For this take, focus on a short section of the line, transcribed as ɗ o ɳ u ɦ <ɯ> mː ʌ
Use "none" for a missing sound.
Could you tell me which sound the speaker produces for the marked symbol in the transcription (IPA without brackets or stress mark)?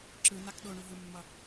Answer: ɯ